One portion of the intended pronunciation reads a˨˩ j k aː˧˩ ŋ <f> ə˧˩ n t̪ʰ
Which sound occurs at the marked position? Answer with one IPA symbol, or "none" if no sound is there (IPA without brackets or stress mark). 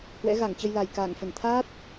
f